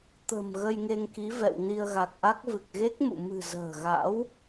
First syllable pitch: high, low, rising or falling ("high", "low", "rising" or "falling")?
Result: low